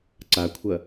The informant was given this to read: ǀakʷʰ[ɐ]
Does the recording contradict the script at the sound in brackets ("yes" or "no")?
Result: no